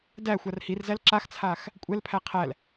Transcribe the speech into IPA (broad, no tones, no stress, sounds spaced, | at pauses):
d æ xʷ a r h i r z æ l ǁ a x t͡sʰ a x | kʷʼ ɛ l pʰ æ qʰ æ l